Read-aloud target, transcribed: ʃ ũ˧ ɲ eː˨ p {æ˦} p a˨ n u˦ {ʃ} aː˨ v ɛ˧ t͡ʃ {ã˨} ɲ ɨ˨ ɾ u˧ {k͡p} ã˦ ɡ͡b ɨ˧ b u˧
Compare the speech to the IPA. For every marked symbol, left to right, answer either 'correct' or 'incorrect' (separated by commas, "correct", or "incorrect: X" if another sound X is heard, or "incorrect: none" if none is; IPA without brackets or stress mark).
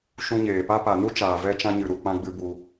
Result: incorrect: a˦, incorrect: t͡ʃ, incorrect: ã˧, correct